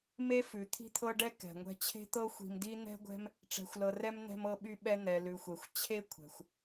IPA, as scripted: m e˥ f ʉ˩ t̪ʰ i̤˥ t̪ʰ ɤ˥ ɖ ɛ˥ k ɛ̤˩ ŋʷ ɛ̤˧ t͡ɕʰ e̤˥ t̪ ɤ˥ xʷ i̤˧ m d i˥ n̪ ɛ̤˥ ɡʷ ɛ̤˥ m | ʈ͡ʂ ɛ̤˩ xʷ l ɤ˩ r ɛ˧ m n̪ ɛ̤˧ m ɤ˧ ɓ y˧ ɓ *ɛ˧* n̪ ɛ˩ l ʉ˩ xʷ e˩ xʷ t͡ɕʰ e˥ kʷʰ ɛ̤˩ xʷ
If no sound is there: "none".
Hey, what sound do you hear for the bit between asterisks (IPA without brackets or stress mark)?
ɛ˧